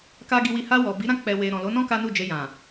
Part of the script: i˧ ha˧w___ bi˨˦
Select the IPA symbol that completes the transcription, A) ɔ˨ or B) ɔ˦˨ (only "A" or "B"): A